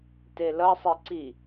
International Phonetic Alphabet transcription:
t e l ʌ sˤ i ǀ i

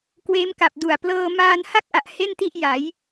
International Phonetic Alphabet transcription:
k w eː˦˥ m k a˨˩ p̚ d u˨˩ a̯ p l ɤː˧ m aː˧ n h a˥˩ k̚ ʔ a˨˩ ʔ h e˥˩ n t i˥˩ ʔ j a˩˦ j

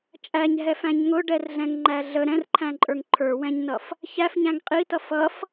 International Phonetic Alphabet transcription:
t͡ʃʼ æ ɲ ɦ ɛ f æ̃ ɲ ŋ ʊ ɖ ɛ r ɮ ɛ̃ ŋ ŋ͡ǃ æ ɮ ə ɾ ɛ̃ r ǃʰ æ̃ ǃʼ ə˞ ŋ ǃʰ ə˞ w ɛ̃ ɲ n ʌ f | ç æ f ɲ æ̃ ŋ qʼ i t ʌ f ʌ f

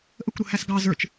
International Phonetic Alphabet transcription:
ʔ ə kʷ ɾ ʊ h æ s ɡ ɑ z ə˞ t͡ʃ

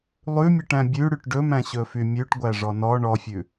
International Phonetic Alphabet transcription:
lˠ ʉ mʲ ʉ ʈ æ̃ bʲ ʉ ɽ y ʈ ɖ ɵ m æ̃ ɕ ɵ f y mʲ ʉ ʈ ɡʷ æ ʐ ɔ n ɔ ɳ ɔ fʲ ʉ

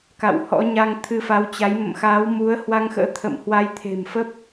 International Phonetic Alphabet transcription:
k a̰˧˨ w h ɔ̰˧˥ ɲ a˧ ŋ t̪ʰ ɨ˧ f a˨˦ w t͡ɕ a˨˦ j m ə̰˧˨ m x aː˨˦ w m u˨˦ ə̯ h w a˧ ŋ x ə̰ː˧˥ t̪ʰ ə̰˧˨ m h w a˧ j t̪ʰ e̤˨˩ m f ə˦˥ p̚

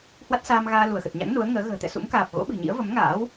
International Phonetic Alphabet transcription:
h w a˦˥ t̚ s aː˧ m ɣ aː˧ l u˧˩ ə̯ x ə˨˩ t̚ ɲ a̰˧˥ ŋ n u˨˦ ə̯ ŋ əː˨˦ ɣ ə̤ː˨˩ t̪ ɛ̰˧˨ s ṵ˧˥ m k aː˨˩ p̚ ɣ o̰˧˥ ɓ ɨ̤˨˩ ɲ ḭ˧˥ ə̯ v ə˨˦ m ŋ a̰ː˧˥ w

